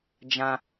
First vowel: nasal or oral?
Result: nasal